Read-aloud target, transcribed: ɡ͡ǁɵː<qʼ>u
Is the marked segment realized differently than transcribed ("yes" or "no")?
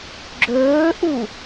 yes